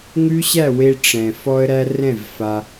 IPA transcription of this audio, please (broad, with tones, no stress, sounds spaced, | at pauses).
ŋ ʉ˦ ɕ æ˦˨ w e˧ ʈ͡ʂ ɛ̃˨ f ɔ˧ ə̯ ɾ æ˧ r ɛ̃˦˨ v f a˧